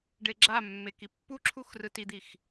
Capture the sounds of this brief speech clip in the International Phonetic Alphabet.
ɖ e ɡ͡ǁ a mː e k i pː u ǁʰ u x r ɯ t i d̪ i x

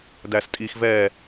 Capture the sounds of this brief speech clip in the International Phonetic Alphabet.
d æ s tʼ i x v ɛ

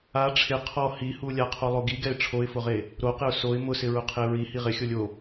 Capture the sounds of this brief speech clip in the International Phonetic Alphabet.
a ʈ͡ʂʰ ɪ qʰ ɔ h i h u lʲ a qʰ o lˠ o ɡ i ɡ ɛ ɪ̯ ʈ͡ʂʰ o ɪ̯ f ʊ ʁ e | ɾ o q ɪ ʊ̯ s o ɪ̯ m ʊ s ɪ ɹ ʊ qʰ e ɹ i h i ʁ ɪ xʲ o lʲ o

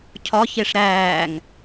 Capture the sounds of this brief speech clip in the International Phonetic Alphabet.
cʰ ɒ ç e ʂ ɾ æː ŋ

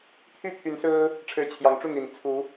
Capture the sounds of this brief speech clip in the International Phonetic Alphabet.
t̪ʰ y˥˨ t̪ʰ y˨˦ n s ɹ̩˦ | ʈ͡ʂʰ ɻ̩˨˦ t͡ɕʰ j ɑ˨˩ ŋ ʈ͡ʂ u˥˨ n̪ i˨˩ n t͡sʰ u˨˦

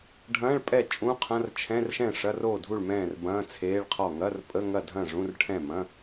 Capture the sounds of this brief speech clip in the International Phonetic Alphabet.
ɖʱ ɐ̃ː˧˥˧ ɭ pʼ ɛ˥˩ t͡ʃʼ ũ˧˥˧ qʰ ɐ̃˧˥˧ r t͡ʃʰ ɛ̃˧˥˧ r ʃ ɛ̃˥˩ ʂ ɐ˧˥˧ r oː˥˩ dʱ u˥˩ ɭ m ɛ̃ː˥˩ r b ɐ̃ː˧˥˧ t͡sʰ eː˧˥˧ ɭ qʰ ɔ˥˩ ŋ ɐ˧˥˧ r pʼ ə˧˥˧ ŋ ɐ˥˩ dʱ ɐ̃˥˩ ʐ ũ˧˥˧ r ʈʰ ɛ̃˥˩ m ɐ̃˧˥˧

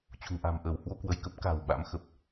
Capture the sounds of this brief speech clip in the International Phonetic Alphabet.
t͡ɕ ṳ˨˩ ŋ ʔ a̤˨˩ m ʔ əː˧˩ w h w o˧ k w ə˧˩ j k ə˦˥ p̚ k a̤ː˨˩ w ɓ a̰˧˥ m x ə˨˩ p̚

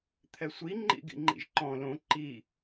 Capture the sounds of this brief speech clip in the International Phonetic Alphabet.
t̪ʰ ɛ sʷ i ŋ͡ǃ ḭ ɡ ḭ ŋ͡ǃ ḭ ʒ ǃ ɔ̃ l õ ǃ i

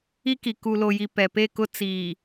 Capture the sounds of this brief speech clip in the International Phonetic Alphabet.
i˦ k i˨ k u˨ l o˨ j i˨ p ɛ˨ p e˦˨ k ʊ˦ t͡s iː˨

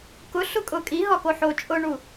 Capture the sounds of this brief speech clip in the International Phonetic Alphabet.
k ʊ ɬ ʊ kʼ ʊ kʼ i ɦ ɒ k o ħ o t͡ʃʼ ʊ ɳ u

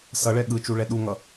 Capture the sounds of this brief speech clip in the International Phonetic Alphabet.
s ʌ ɭ ɛ ɠ ɯ t͡ʃ u ɭ ɛ ɗ u ŋ ʌ

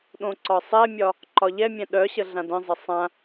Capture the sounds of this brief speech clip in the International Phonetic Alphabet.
ɗ õ ǀ ɒ sˤ ɛ mʲ ɒ | ǃ ɒ ʎ ɛ mʲ ɛ̃ ɗ œ ɕ ə ɮ ã d ə̃ zˤ ə sˤ ã

